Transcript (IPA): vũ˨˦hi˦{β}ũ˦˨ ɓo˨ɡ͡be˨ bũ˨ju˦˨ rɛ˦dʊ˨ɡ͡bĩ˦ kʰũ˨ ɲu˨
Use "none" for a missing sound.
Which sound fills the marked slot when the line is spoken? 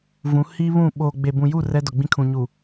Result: β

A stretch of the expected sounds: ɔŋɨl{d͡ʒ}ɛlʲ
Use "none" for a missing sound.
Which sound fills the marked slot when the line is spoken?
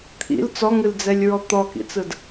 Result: d͡z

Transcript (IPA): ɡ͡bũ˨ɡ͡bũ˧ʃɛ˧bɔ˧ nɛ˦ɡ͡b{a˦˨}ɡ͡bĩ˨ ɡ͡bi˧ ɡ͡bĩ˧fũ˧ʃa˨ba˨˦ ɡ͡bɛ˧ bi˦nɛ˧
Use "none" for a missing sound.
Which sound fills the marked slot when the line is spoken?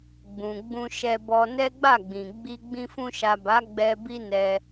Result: a˦˨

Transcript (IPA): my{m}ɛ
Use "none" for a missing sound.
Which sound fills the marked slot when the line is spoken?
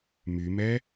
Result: m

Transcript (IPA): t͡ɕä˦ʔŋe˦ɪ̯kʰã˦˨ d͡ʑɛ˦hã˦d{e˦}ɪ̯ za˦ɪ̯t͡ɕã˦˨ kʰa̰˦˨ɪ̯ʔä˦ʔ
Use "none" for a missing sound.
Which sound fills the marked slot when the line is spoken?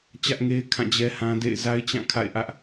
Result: ḛ˦˨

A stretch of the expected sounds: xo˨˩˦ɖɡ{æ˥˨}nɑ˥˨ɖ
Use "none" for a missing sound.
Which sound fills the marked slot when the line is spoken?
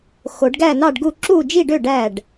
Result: æ˥˨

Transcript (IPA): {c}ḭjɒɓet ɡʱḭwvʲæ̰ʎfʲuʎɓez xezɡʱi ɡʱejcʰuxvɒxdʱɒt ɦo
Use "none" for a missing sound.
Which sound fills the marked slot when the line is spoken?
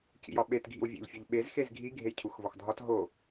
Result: c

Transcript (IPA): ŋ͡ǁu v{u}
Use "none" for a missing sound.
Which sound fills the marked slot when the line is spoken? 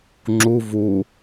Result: u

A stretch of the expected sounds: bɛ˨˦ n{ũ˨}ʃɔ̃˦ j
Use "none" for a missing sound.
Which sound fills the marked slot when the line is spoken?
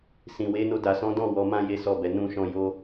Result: ũ˦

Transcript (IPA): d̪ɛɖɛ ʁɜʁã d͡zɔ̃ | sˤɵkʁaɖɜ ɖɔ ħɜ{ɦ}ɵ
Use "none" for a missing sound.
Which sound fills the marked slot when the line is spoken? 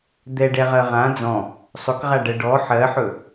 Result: ħ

